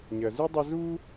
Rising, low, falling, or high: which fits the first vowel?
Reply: low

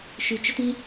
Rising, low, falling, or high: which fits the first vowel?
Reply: low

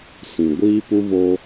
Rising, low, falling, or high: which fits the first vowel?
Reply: low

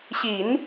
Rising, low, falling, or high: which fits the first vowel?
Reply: low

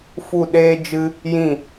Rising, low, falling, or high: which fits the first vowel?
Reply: falling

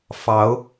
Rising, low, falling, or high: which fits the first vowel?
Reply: rising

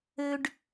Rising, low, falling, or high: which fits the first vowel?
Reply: high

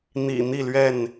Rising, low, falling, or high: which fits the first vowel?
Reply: low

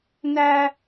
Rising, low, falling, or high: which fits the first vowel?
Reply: high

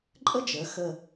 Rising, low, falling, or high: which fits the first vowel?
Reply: high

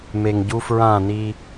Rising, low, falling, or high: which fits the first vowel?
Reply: low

